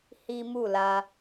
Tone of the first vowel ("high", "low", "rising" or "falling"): high